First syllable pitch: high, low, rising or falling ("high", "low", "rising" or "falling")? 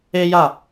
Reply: high